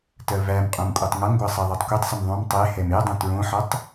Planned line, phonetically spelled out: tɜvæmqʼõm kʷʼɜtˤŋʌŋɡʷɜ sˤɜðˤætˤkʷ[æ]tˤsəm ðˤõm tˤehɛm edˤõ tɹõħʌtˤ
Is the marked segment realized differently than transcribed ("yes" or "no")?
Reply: yes